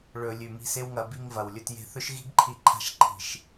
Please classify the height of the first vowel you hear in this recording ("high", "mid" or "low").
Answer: mid